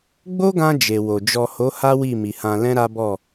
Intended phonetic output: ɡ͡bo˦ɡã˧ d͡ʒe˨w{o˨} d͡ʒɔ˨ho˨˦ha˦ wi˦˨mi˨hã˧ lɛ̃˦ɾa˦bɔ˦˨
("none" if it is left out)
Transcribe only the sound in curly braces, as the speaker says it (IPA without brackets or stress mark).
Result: o˨